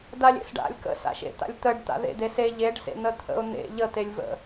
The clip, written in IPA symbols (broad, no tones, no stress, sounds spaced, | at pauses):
d a lʲ ḛ s ɖ a̰ lʲ k ə̰ s a̰ ʃ ḛ t̪ a̰ lʲ t̪ ə ɖ t̪ a̰ ð ḛ d̪ e s e ʎ e ɖ s ḛ n̪ ə t̪ʰ ə̰ ʊ̯ n̪ ḛ ʎ ə t̪ e lʲ v ə̰